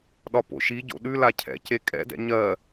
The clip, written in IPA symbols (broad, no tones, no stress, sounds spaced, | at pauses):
ɗ ɒ p o̰ ʃ i ɟ o̰ ɗ ʉ l a cʰ ɛ̰ c e kʼ ɛ̰ d ɛ̰ ɲ ɜ